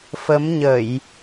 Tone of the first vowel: rising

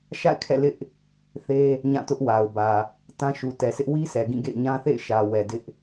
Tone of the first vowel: falling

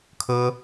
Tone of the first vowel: high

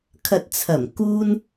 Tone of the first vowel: low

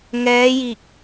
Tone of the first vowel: rising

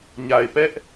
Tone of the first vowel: low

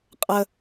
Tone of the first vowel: high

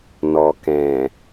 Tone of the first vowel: low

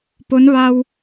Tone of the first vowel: rising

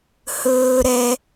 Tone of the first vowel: low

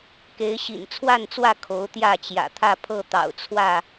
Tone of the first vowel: rising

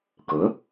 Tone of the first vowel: rising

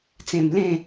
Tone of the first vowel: low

